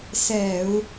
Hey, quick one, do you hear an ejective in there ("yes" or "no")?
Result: no